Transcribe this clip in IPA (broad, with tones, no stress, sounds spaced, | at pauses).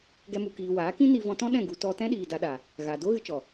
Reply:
ɡ ɛ˦ m u˧ k iː˧ w aː˨˦ k ĩ˦ n i˧ v ɔ̃˧ t ɔ̃˦ ɗ ɛ̃˦˨ ɡ u˧ t ɔ˧ t ɛ̃˦ ɗ iː˨ d a˧ ɗ a˨ | ɣ a˨ d o˦ ɣ ɨ˧ t͡ʃ ɔ˨